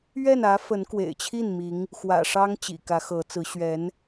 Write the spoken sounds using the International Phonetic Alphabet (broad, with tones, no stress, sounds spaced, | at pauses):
ɥ ɛ˥˩ n ä˧˥ f ə˧˥ n k w ḛ˨˩ ɪ̯ t͡ɕʰ i˥˩ n m i˧˥ ŋ | x w ä̰˨˩ ʂ ɑ˥ ŋ t͡ɕ ḭ˨˩ k ä˧˥ x ɤ˧˥ t͡s ɹ̩˧˥ ɕ ɥ ɛ˧˥ n